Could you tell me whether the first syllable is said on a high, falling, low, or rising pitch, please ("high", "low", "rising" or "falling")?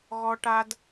high